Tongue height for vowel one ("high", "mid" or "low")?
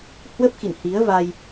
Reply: mid